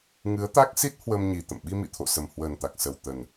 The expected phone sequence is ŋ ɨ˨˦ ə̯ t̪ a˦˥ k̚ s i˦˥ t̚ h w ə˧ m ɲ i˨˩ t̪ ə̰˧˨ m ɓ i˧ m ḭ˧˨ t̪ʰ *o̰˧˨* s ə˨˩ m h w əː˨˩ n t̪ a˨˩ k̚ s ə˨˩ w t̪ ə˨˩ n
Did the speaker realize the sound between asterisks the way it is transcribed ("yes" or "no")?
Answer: yes